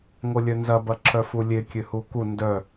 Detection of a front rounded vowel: present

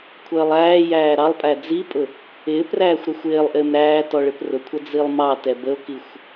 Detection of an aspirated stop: present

